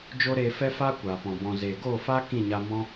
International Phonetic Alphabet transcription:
d͡ʒ o˦ ɾ eː˧ f ɛ˦ f aː˦ kʷ aː˨ p ɔ̃˨ b ɔ̃˨ z eː˨ ɡ oː˦˨ f a˦ k ĩ˦˨ ɲ a˧ m ɔ̃˦

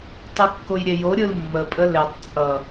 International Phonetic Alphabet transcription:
tˤ ɯ kː o j ɾʲ e j o ɾʲ ɯ l mː ə pʼ ə l e tˤ t͡sʼ ʌ

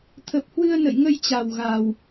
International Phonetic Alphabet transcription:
t̪ʰ ə˨˩ p̚ h w ɨ˧ ə̯ n ə̰˧˨ j ŋ ə˧ j t͡ɕ a˨˩ w ɣ a˨˩ w

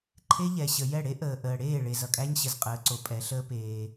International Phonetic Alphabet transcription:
ǃʰ e˦ ʎ ɛ˨ ɕ ə˨ j ɛ˦˨ ɽ e˦ ʔ əː˨ ʔ əː˨ ɽ eː˦˨ ɭ e˨ z ʌ˨ kʼ æ˦ ɲ ɕ ə˨ z qʼ əː˨˦ ǀ o˨ pʼ ɛ˨˦ ɬ əː˦ p eː˦

